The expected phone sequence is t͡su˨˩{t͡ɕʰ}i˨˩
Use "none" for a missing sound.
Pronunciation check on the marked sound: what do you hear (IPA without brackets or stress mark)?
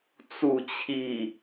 t͡ɕʰ